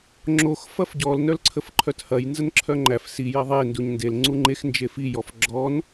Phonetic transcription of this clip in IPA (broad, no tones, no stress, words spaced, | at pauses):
ŋ͡ǁox fɐfɟɔl nœlǀʰəfǃʰœthɐj nzənǁʰœŋ͡ǃæf si jɐðˤe nduɲndel ŋ͡ǀuŋ͡ǃex nd͡ʒefi jɔfɡ͡ǁɔn